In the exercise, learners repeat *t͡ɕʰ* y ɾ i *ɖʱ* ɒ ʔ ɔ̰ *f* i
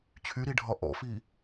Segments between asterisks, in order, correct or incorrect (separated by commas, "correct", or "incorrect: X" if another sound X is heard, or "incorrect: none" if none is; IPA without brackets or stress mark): correct, correct, correct